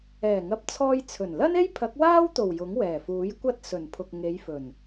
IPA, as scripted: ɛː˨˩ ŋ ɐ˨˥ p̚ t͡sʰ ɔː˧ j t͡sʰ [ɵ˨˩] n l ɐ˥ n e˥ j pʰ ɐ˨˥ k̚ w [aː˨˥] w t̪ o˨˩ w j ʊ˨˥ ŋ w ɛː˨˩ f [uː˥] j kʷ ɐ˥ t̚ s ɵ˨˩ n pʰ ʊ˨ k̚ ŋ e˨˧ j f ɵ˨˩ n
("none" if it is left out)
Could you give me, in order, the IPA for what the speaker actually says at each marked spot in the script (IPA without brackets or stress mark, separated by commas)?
ɵ˨˩, aː˥, uː˨˥